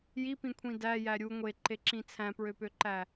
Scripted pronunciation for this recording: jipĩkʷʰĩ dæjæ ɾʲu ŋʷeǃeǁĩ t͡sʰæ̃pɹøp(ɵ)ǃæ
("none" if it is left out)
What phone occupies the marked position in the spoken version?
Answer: ø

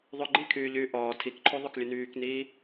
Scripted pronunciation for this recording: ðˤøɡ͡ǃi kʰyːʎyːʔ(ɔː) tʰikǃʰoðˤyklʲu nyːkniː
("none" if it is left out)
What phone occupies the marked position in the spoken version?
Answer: ɔː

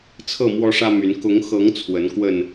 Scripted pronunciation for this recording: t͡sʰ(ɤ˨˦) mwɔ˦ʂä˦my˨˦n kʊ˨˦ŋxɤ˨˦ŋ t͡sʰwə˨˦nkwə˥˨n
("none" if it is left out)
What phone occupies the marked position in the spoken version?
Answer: ɤ˥˨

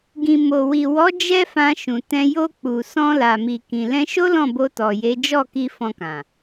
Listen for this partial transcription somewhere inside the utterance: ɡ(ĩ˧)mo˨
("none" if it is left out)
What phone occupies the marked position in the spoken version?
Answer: ĩ˨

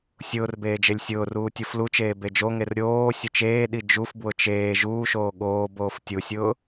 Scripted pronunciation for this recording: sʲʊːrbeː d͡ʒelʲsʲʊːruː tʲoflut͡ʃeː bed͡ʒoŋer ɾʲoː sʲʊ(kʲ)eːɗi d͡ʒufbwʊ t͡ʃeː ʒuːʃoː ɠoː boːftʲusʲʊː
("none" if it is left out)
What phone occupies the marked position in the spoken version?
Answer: t͡ʃ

